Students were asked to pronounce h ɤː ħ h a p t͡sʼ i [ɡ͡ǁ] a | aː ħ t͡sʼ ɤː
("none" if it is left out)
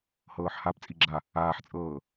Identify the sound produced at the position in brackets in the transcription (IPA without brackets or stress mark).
ɡ͡ǁ